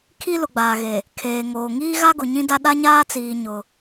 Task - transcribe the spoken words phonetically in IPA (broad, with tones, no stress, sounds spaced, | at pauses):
kʰ i˦ l ʊ˨ ɡ͡b aː˨ ɣ e˨ | kʰ eː˨ ŋ oː˨ ŋ iː˦ ɣ a˦ ɡ ʊ˨ ɲ ĩ˦ d a˦ ɗ a˦ ɲ aː˦ t͡s iː˨ ɲ ʊ˦